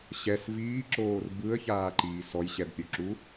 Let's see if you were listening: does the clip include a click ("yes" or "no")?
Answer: yes